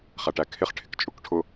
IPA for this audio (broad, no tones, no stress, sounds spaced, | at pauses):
χ æ ʈ æ kʰ ɪ χ ʈʰ ɪ k t͡ʃʼ ʊ k ʈʰ ʊ